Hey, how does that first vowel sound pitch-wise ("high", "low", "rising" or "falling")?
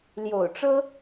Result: low